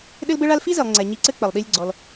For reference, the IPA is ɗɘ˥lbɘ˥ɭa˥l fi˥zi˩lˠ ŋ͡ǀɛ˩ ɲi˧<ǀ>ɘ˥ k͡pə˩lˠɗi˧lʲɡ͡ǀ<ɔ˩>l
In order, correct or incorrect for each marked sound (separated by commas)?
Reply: correct, correct